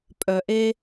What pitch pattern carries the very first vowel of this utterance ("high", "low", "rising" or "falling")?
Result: low